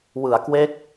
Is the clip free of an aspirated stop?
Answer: yes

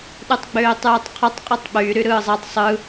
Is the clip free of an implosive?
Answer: no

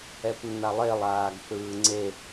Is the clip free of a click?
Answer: no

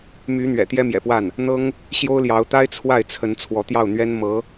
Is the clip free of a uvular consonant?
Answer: yes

